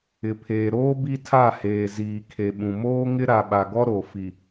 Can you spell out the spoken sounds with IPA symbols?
ɪ˨ pʰ eː˨ ɾ oː˦ b i˦ tʰ a˦˨ h eː˨ z iː˨ kʰ e˨ ɓ ũ˨ m oː˦ ŋ ɪ˦ ɾ a˨ ɓ a˨ ɡ ɔ˦ ɾ o˨ f i˨

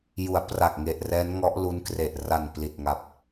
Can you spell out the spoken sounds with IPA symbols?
j u˩˦ a̯ p r a˨˩ k̚ ŋ e˨˩ ʔ r ɛː˦˥ n ŋ ɔ˦˥ ʔ l u˦˥ n k r e˨˩ ʔ r a˨˩ n p l i˨˩ t̚ ŋ a˨˩ p̚

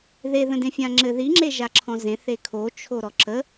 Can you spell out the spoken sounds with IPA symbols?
ð e ð ə̃ d ẽ fʲ ã ŋ͡ǁ ɘ ð i ŋ͡ǁ e ʒ a ǁʰ ɔ̃ z ẽ θ e kʰ o t͡ʃʰ o ɾ ɔ ǁ ə

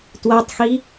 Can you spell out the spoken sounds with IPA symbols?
t w a tˤ x i

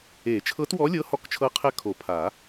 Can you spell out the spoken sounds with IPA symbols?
e˨˩˦ t͡ʃʰ ɤ˧˥ t w ɔ˧˥ lʲ ɤ˧˥ h ɔ˧˥ k t͡ʃʰ ɤ˧˥ qʰ ɛ˧˥ kʰ o˨˩˦ pʰ a˨˩˦

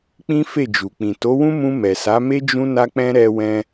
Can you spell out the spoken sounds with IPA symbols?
k͡p ĩ˦ f e˦˨ d͡ʒ u˨ k͡p ĩ˨ t o˨˦ w ũ˦ m ũ˧ m ɛ˨ s a˨˦ m e˦ d͡ʒ ũ˦ n a˦ k͡p ɛ̃˦ ɾ ɛ˧ w ɛ̃˧

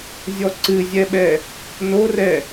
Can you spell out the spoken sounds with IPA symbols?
zʲ ɔ ǀ ɨ zʲ ɛ ɓ ɛ | n o r ɛ

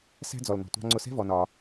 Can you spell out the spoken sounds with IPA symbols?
s æ̤˦ d͡z ɔ˨ l n ɔ̤˨ tʷ ɑ̤˧ ŋ͡ǀ ʊ˧ s ɛ̤˦ v ɔ˧ n ɒː˧

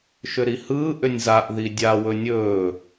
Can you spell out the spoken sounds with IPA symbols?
ʃ ʏ ɾ i h ɯː ʔ ʏ nʲ z a ʔ ð i dʲ a w ɵ nʲ ɵː

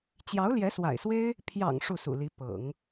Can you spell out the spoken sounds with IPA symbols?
t͡ɕ j ɑ˧˥ ʊ̯ l j ɛ˧˥ s w a̰˨˩ ɪ̯ s w e˥ ɪ̯ | pʰ j ɑ̰˨˩ ŋ ʂ u˥˩ s ṵ˨˩ l i˧˥ p ɤ̰˨˩˦ ŋ

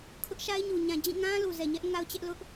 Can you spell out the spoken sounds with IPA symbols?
kʰ ʊ˦ ʔ ʃ a˦ ɪ̯ ɲ u˨ ɲ ã˨ d͡ʑ ĩ˦˨ ŋ ã˦ l u˨ z ɛ˨ ɲ ɛ˦ ʔ ŋ a˦ ʊ̯ t͡ɕ ɛ˦ ʔ l ʊ˦ ʔ

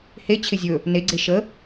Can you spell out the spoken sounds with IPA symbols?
h e t͡ɕʰ ɪ zʲ ɵ | n e ɡ͡ǀ e ʃ ə

